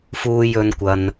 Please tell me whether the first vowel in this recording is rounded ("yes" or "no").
yes